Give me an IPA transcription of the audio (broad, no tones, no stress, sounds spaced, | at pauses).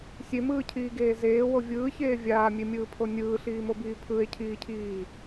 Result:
sʲ e m ɯː cʰ iː ɡ eː z eː w o vʲ ɯː ç eː vʲ aː mʲ e mʲ ɯː pʰ o nʲ ɯː ɬ iː m o b iː pʰ ɯ e̯ cʰ iː cʰ iː